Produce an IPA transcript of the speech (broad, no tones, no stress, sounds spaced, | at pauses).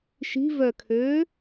ʃ i̤ v œ kʰ ø